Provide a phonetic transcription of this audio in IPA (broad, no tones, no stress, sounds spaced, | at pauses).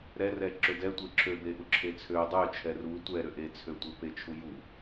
ɾ ɛ r ɛ ǁ ø d ɛ tʷ e ǁʰ ø b e ʔ u ǁʰ e t͡sʰ ø dˤ ø t͡ʃʰ ɛ r u tʷ ɛ ɾ ø ʔ e t͡sʰ ø tʷ e p e t͡ʃʰ u j u